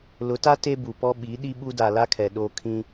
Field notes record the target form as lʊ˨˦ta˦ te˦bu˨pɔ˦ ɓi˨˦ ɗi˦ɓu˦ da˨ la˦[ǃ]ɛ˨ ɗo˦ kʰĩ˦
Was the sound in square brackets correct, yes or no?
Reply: no